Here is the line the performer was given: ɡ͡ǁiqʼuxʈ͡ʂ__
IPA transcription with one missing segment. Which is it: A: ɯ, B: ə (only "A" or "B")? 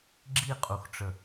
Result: B